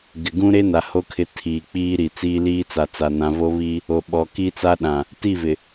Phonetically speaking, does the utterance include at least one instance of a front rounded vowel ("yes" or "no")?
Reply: no